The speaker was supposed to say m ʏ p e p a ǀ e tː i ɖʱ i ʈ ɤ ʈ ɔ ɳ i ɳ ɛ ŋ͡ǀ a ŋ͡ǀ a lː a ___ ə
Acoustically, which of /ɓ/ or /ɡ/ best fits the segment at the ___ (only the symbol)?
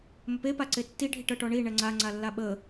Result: ɓ